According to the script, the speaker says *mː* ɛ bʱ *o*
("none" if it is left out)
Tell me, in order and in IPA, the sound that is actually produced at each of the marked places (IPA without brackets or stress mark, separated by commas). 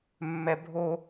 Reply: mː, o